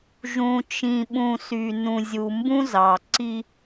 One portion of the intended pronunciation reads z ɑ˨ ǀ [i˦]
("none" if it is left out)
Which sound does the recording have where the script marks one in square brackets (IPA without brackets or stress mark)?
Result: i˦